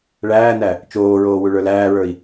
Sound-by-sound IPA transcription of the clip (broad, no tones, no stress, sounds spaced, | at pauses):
ɭ æː n æ | t͡ʃ oː ɹ oː w u ɭ ə˞ l æː ɹ ə˞ i̯